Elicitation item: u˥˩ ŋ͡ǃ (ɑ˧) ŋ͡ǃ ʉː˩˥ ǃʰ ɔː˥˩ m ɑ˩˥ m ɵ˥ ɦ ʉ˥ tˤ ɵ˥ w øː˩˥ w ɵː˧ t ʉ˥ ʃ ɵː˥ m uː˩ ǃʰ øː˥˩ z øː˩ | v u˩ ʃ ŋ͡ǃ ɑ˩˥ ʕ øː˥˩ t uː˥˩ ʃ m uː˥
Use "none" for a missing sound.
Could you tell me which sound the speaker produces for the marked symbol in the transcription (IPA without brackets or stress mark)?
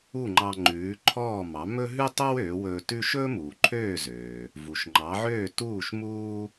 ɑ˧